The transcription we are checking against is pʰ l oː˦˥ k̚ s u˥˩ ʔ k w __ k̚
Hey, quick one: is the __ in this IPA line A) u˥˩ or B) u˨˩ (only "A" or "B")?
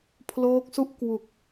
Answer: B